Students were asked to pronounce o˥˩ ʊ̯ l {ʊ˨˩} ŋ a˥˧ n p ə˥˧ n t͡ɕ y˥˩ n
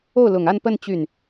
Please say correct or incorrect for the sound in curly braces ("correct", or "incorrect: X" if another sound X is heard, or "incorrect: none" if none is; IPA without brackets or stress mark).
correct